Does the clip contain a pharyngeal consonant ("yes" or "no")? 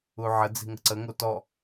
yes